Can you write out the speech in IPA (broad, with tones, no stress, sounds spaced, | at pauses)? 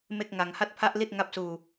m e˥˩ k̚ ŋ a˧ ŋ h a˥˩ t̚ pʰ a˥˩ ʔ l i˥˩ t̚ ŋ a˦˥ p̚ s uː˧